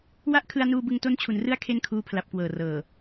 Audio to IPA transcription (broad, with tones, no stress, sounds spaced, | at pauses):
w a˥˩ ʔ kʰ ɯ˧ a̯ n uː˧ b ɯ˧ ŋ t o˦˥ n t͡ɕʰ u˩˦ n r ɯ˦˥ a̯ kʰ e˥˩ n kʰ uː˦˥ pʰ l a˨˩ p̚ k w ɤː˨˩ r ɤː˨˩